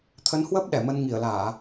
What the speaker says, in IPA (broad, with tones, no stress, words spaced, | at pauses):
t̪ʰə˨˦nhwəː˦˥p̚ ɗɛ˧˩mə˧n ŋi˧˩ə̯laː˧˩˨